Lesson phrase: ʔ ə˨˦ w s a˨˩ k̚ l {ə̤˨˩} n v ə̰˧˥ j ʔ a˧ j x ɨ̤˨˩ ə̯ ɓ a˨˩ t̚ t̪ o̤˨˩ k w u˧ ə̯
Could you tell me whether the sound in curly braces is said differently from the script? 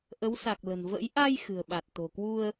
no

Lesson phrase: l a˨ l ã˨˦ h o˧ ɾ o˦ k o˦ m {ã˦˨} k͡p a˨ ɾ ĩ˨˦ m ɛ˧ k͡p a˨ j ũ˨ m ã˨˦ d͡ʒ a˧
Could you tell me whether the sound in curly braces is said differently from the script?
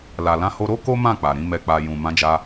no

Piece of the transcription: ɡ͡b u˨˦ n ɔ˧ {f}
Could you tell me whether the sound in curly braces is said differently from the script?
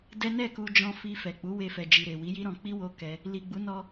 yes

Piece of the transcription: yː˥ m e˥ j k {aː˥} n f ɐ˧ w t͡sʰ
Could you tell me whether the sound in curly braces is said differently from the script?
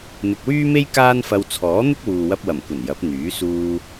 no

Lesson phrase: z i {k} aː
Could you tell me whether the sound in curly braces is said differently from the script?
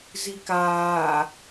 no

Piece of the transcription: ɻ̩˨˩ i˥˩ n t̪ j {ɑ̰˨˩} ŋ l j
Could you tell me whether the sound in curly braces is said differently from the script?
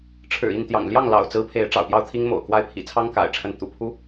no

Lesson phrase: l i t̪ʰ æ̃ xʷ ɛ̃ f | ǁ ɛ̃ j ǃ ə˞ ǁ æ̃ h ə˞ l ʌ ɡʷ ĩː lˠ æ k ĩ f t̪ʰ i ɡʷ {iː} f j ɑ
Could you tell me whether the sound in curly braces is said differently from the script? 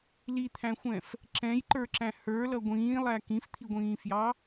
yes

